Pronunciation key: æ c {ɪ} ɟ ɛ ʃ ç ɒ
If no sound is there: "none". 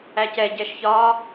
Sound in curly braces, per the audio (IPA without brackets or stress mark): ɛ